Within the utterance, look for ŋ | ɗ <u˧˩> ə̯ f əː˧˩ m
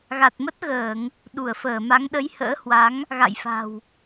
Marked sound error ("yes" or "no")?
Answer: no